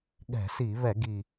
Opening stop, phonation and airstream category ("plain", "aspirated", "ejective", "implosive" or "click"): implosive